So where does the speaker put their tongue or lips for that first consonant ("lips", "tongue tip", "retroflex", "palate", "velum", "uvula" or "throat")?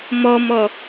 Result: lips